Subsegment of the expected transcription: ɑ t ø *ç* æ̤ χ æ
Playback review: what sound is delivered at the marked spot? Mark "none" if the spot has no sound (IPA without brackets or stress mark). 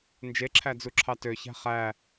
ç